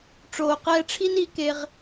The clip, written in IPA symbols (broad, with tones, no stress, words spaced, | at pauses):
ʈ͡ʂoː˨qɛː˧ʈ͡ʂʰi˦n i˨˦ ke˧ʁ